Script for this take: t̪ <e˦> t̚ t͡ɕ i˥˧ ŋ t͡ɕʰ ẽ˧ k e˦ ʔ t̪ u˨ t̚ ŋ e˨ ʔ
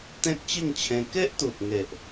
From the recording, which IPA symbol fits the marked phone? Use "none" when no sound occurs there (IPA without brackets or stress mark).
ẽ˦